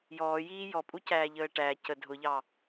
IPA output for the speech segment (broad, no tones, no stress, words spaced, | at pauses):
jɔːjiː jɔpʼucæːʎəː ʈæ cə dʱʊʎɑ